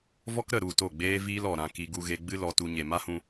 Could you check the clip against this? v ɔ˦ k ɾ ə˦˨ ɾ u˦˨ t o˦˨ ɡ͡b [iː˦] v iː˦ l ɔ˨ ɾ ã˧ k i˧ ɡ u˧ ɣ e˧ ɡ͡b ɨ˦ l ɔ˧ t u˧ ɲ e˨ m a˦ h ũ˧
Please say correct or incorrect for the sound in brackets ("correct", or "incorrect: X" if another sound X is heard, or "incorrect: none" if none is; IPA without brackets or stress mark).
incorrect: eː˦